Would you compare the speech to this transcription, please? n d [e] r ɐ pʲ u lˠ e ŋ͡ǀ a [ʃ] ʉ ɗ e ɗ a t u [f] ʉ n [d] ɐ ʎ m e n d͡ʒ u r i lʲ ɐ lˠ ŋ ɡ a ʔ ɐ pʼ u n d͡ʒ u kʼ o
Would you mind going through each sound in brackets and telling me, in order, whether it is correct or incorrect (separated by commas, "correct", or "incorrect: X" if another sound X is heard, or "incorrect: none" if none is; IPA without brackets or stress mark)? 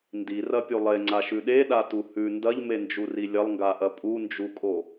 incorrect: i, correct, incorrect: h, correct